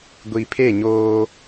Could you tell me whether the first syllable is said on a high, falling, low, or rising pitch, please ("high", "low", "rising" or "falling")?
low